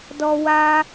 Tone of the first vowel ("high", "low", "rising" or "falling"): high